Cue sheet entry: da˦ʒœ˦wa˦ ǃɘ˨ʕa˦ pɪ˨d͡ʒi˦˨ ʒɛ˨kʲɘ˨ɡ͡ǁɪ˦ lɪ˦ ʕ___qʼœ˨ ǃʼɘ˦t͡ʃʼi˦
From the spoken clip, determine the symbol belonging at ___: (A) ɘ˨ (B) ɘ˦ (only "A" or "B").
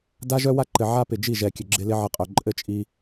B